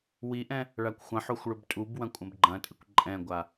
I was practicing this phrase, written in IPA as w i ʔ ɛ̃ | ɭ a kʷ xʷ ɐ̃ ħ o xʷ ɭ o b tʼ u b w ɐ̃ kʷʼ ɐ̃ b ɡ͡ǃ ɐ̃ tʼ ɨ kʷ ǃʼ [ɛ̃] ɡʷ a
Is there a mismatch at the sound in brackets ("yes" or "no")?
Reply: no